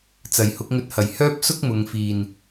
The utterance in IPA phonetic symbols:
t͡s ɐ˨˩ j h ʊ˨˥ k̚ ŋ ɵ˧ t̚ h ɐ˨˩ j h œː˥ p̚ s ʊ˥ k̚ m ʊ˨ ŋ f iː˨˩ n

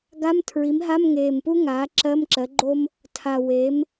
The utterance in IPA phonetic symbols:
ɡ a˧˥˧ m tʰ ɹ i˩˥ m ɦ a˧˥˧ m ŋ eː˨˩ m p u˥ ŋ aː˩˥ ǁ ɜ˧˥˧ m ǁ ɜ˩˥ ɡ͡ǃ o˥ m | tʰ a˨˩ w eː˩˥ m

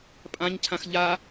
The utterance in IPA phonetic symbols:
pʼ ã ɲ cʰ ã x ʎ a

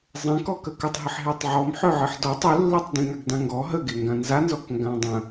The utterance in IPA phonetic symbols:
zˤ ẽ k ɔ k ə k ə tˤ ɦ ə ħ ɦ e tˤ ʕ ɔ m ħ ø ʕ ɨ ħ d ɔ tˤ ø lː e tˤ d ĩ ŋ a ɡ d ã ŋ ɡ ɔ ɦ ə ɡ e ŋ ɡ ã n z a n z ɔ k ŋ ɡ ã dˤ ə̃

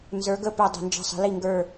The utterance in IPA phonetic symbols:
n z ə˞˨˦ ɡ ə˦˨ p ɵ˦˨ dˤ ə̤˧˩˧ n d͡ʒ ə̤˦˨ sˤ ə̤˨˦ l i˦˨ ŋ ɡ ə˞˦˨

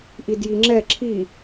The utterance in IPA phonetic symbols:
ʔ i d j i ŋ͡ǁ ɛ ǁʰ i

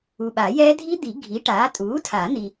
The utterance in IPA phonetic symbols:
u˨ ɓ a˨˩˦ j ɛː˦˥ dʱ i˦˥ d̪ i˨˩˦ ɡʱ i˩˥ ʈ aː˩˥ tʼ uː˩˥ tʰ a˨˩˦ n̪ i˨

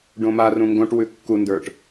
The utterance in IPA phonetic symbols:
ɖ õ m a r ũ ŋ ɡ õ ʈ w ʉ kː u n d ə˞ ʈ

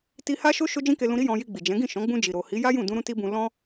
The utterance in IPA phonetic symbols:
t i˧ h a˦ ʃ o˦ ʃ o˦ d͡ʒ ĩ˦ k e˧ l ũ˧ ɾ i˦ j ɔ̃˧ j i˧ ɡ͡b i˨ d͡ʒ ɛ̃˨˦ ɡ ĩ˦˨ ʃ ɔ̃˨˦ ɡ͡b ũ˧ d͡ʒ i˨ ɾ o˨ h i˨˦ j a˦ j ũ˦˨ d ũ˧ ɾ ũ˦ t i˦ b ũ˧ l ɔ̃˦

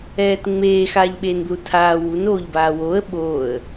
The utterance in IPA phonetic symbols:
ɛː t ŋ͡m eː x aː ʎ ɓ eː n b l u tʰ aː w u n oː ʎ b aː w oː ə̯ ɓ oː ə̯

